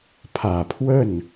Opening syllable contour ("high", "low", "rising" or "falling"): low